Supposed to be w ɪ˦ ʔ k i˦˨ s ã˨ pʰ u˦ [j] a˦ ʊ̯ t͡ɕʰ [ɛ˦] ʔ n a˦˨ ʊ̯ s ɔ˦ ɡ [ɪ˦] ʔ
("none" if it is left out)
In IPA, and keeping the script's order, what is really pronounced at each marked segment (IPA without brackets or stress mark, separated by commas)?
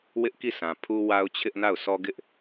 w, ɪ˦, ɪ˦